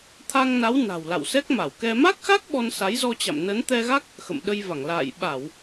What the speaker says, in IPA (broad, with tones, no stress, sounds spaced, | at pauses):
t̪ʰ a˧ ŋ n a˨˦ w n a̤˨˩ w l a̰˧˨ w s ɛ˦˥ k̚ m a˧˩ w k ɛ˧ m a˦˥ k̚ x a˦˥ k̚ ɓ ɔ˧ n s a˨˦ j z ɔ˧ t͡ɕ a̰˧˨ m n ə˨˦ n t̪ ɛ˧ ɣ a˦˥ k̚ | x ə̰˧˨ m ɗ ə˧ j v a˧˩ ŋ l a̰ː˧˨ j ɓ a˧˩˨ w